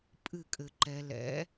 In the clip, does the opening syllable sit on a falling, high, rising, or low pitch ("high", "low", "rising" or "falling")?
falling